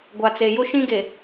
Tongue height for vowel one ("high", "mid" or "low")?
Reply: low